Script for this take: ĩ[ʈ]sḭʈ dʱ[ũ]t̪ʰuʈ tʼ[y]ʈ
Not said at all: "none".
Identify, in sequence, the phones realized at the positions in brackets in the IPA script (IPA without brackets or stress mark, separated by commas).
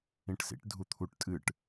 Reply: ʈ, u, ɨ